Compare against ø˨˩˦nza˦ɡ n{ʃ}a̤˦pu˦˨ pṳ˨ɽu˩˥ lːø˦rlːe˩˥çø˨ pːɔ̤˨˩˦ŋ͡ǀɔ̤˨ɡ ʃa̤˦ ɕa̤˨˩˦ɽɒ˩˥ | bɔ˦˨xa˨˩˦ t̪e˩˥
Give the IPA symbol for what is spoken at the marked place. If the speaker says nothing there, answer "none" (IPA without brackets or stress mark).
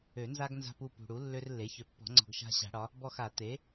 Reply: z